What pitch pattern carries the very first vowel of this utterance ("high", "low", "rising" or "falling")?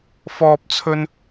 high